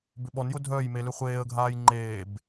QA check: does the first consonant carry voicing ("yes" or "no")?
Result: yes